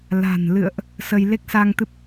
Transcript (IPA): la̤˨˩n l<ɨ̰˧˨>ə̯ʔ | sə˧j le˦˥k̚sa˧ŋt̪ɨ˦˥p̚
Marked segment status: correct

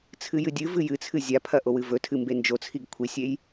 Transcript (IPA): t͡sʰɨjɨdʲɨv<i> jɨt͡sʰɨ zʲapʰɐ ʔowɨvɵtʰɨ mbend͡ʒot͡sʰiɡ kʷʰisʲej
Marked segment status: incorrect: ɨ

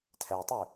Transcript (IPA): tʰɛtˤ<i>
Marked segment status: incorrect: y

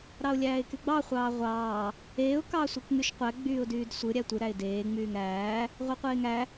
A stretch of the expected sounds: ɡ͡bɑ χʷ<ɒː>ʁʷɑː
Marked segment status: incorrect: ɑː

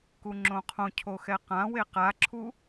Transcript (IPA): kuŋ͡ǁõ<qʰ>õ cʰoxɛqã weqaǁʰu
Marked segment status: correct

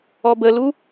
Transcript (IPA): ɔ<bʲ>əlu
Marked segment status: incorrect: b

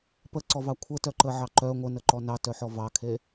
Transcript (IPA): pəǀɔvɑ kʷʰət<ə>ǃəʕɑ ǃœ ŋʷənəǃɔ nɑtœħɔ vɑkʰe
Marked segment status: incorrect: œ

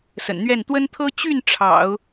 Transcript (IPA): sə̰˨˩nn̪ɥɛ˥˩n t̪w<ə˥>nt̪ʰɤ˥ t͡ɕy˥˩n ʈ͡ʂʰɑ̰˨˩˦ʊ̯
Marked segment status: correct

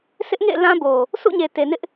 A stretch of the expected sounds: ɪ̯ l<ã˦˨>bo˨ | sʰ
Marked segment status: incorrect: ã˦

